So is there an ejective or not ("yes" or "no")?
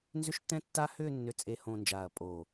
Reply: yes